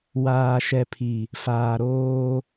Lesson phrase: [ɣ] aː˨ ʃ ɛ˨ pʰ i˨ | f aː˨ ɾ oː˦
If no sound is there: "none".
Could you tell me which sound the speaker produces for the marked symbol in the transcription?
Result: w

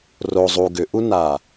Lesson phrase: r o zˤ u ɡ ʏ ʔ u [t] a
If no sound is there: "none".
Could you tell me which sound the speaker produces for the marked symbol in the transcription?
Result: n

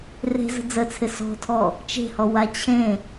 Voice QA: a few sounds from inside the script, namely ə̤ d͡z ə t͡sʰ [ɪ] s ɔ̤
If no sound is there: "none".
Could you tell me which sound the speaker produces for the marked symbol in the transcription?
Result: ɪ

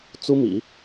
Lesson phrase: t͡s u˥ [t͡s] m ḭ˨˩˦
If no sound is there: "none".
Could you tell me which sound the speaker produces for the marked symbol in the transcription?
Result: none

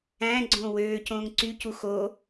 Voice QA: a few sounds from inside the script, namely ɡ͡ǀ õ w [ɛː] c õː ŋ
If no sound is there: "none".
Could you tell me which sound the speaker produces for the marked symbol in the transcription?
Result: øː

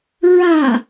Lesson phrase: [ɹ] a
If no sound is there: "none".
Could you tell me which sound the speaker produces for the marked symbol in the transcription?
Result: ɹ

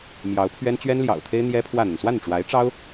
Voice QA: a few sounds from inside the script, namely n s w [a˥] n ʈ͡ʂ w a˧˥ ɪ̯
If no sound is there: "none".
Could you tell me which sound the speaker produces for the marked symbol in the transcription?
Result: a˥˩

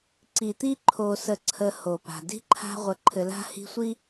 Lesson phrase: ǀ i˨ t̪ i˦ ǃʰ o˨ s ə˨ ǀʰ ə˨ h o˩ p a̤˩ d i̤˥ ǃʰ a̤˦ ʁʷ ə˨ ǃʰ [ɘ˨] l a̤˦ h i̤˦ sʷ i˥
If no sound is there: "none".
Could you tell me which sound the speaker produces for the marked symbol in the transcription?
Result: ɘ˨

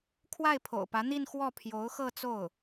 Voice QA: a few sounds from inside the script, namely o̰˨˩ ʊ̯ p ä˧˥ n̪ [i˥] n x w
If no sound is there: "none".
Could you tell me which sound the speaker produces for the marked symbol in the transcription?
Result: i˥˧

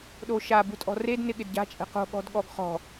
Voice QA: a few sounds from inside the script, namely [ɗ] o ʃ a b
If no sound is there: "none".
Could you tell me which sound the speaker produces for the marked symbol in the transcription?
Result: ɗ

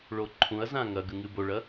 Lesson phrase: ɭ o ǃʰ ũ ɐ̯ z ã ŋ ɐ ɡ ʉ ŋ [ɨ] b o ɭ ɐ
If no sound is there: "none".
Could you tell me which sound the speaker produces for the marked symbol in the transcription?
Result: ɨ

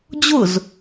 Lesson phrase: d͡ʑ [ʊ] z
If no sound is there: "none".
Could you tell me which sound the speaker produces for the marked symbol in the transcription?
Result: ʊ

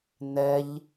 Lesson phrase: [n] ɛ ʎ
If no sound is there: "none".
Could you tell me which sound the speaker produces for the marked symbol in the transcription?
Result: n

